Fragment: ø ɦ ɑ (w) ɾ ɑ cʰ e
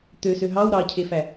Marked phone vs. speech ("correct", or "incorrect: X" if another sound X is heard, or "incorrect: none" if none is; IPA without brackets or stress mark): correct